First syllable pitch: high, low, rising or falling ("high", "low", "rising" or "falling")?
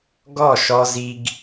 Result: falling